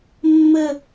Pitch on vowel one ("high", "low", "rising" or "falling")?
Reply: falling